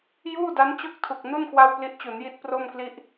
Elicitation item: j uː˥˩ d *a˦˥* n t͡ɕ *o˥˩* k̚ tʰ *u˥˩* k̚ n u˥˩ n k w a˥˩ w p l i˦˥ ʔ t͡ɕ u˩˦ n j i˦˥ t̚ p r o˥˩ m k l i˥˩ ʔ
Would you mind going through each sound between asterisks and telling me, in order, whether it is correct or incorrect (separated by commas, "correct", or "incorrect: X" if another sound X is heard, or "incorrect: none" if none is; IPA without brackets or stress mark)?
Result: correct, correct, incorrect: u˨˩